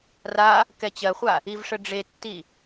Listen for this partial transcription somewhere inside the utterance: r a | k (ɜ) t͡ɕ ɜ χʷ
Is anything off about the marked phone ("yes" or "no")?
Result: yes